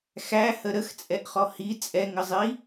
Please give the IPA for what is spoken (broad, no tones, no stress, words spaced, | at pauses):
xæhə ɾəxt͡sʼɛʔχɔ hi t͡sʼɛŋəzˤi